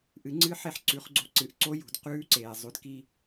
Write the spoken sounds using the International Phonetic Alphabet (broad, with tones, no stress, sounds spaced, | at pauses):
ʔ ɨ˩˧ ŋ͡ǀ ɨ˧˥ ħ e˧ ħ ǀ ʉ˩˧ χ ɡ͡ǀ o̤˧ ǀ ɨ˩˧ ʔ ǀ o˧˥ j ṳ˩ d q ʉː˧˥ ǀ eː˩ zˤ ʉ˩˧ d k i˧